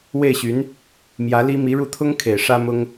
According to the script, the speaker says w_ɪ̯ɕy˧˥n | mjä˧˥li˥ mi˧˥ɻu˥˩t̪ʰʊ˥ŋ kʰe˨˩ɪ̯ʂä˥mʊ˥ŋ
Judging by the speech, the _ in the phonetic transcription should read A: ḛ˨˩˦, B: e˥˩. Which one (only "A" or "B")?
B